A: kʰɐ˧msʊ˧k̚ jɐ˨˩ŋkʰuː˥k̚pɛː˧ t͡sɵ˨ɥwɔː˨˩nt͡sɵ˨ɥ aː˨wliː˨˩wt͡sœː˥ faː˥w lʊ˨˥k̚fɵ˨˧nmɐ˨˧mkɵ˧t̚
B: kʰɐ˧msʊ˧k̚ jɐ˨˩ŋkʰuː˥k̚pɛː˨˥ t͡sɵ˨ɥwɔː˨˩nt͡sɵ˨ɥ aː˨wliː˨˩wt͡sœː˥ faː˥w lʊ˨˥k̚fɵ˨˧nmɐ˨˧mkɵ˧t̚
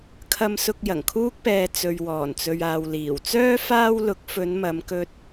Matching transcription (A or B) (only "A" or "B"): A